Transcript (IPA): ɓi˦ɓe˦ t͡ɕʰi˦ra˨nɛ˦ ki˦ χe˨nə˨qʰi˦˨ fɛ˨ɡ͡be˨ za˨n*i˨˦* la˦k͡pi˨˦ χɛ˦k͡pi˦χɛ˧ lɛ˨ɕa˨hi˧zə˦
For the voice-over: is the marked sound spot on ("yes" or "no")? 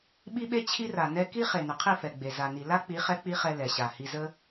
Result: no